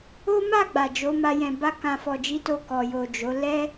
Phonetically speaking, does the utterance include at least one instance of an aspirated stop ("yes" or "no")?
no